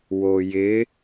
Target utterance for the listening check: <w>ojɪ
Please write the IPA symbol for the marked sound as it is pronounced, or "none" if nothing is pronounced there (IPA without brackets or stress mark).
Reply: w